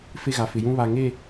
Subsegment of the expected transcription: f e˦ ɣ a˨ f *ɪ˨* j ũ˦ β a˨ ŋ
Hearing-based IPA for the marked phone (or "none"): ɪ˨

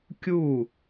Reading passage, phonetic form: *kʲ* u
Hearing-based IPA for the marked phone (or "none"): kʲ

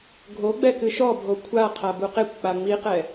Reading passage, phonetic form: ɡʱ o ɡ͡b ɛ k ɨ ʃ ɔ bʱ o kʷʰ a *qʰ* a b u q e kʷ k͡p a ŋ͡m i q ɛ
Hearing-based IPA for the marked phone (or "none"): qʰ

